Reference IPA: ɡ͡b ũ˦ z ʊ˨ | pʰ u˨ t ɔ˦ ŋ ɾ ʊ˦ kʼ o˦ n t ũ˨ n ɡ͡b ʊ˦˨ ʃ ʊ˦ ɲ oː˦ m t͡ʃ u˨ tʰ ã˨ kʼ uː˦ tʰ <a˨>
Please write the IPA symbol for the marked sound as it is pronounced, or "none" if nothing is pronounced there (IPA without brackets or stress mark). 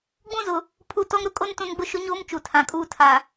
a˨